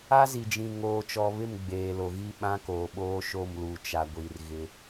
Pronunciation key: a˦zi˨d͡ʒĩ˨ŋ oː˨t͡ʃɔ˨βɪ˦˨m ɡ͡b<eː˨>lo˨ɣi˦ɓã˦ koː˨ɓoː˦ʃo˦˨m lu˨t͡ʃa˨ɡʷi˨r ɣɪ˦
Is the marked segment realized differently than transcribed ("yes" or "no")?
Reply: no